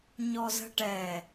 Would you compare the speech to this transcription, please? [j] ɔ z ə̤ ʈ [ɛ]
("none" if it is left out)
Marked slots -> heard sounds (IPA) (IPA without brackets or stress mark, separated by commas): ɲ, ɛ